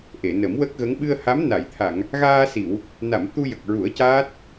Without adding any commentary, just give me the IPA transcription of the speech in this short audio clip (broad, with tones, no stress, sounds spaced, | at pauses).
ʔ e˨˩˨ n ə˨˩˦ m w ə˦˥ k̚ ɣ ə˧˥ ŋ ɓ ɨ˧ ə̯ h a˧˥ m n a˨˩˨ j t̪ʰ a˨˩˨ ŋ | ɣ aː˧ s i˨˩˨ w | n a˨˩˨ m t̪ u˧ j ə˨˩ k̚ ɹ u˨˩˦ ə̯ c aː˦˥ t̚